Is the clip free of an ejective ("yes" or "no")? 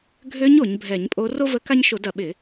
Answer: no